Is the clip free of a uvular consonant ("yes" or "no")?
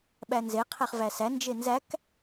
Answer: no